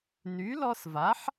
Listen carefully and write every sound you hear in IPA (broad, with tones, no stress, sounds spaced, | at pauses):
n y˩˥ l ɔ˧ s v a˩˥ ħ